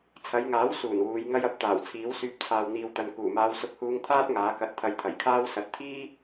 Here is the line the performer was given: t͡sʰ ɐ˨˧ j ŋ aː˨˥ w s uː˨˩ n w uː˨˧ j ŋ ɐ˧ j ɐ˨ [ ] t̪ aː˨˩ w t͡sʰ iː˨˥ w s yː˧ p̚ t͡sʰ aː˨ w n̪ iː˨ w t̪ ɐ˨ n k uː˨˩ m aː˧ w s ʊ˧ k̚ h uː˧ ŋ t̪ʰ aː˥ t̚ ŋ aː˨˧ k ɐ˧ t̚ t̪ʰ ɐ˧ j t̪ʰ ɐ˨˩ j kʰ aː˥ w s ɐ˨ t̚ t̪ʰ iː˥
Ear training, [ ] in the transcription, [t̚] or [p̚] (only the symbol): p̚